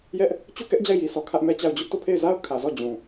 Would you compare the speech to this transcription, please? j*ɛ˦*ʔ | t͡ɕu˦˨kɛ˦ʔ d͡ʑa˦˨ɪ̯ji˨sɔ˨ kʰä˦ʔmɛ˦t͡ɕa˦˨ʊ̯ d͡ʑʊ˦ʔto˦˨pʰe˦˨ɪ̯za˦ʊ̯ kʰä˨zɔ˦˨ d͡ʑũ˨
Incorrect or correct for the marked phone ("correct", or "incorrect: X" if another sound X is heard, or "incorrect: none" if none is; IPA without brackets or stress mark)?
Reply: correct